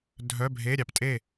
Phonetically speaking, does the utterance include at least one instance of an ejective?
yes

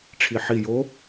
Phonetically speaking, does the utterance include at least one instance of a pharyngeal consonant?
yes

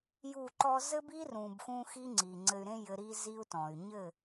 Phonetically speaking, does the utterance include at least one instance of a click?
yes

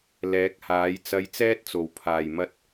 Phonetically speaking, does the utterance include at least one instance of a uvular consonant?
no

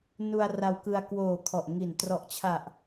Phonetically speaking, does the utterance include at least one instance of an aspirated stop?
yes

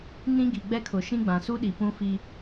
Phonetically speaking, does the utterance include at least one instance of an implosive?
yes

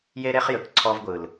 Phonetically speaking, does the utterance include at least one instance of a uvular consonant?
yes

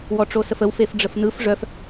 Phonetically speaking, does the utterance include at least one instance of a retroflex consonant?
yes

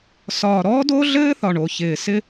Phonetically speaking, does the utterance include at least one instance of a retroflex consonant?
yes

